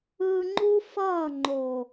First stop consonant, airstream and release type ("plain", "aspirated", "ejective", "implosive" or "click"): click